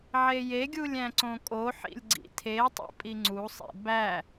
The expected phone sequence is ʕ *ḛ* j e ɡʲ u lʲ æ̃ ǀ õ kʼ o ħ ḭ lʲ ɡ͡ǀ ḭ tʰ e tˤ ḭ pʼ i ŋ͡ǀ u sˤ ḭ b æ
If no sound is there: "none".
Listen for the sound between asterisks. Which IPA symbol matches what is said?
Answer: e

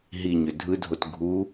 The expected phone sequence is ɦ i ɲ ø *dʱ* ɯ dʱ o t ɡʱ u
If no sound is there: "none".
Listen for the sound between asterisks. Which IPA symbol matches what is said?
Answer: dʱ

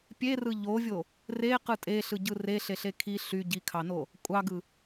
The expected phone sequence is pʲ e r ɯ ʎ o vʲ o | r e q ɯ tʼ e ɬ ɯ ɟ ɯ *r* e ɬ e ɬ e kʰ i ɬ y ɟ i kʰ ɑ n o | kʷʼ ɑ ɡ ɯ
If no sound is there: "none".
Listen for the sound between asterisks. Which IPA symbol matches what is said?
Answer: r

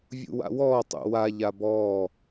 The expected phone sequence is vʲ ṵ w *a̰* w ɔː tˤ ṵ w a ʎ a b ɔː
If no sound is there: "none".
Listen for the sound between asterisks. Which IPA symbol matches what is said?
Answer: a̰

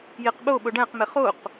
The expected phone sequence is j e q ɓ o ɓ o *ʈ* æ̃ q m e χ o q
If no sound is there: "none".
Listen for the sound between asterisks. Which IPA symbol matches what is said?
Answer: ɖ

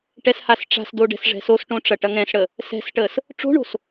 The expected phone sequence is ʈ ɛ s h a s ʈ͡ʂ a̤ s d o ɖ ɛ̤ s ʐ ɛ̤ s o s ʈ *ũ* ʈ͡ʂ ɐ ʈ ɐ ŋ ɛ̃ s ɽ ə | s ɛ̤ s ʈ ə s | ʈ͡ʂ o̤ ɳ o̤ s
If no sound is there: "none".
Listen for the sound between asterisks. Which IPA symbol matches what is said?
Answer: õ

